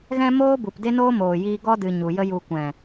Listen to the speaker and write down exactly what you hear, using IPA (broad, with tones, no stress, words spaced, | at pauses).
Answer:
ɣɛ̃˦moː˦bu˨pde˦ noː˦moː˨jiː˧ɡɔ˦ dɨ˧ ɲu˨jə˦ju˧ kʷɛ̃˨